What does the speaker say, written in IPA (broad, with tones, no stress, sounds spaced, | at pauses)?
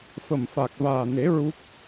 f ə˨˩ m f a˨˩ k̚ v aː˨˩ n e˨˩˦ ɹ u˦˥ k̚